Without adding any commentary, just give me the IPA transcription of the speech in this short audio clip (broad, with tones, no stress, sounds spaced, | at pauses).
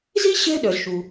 z i˥ ɕ ɛ̤˦ ɗ œ˩ z ʃ u˩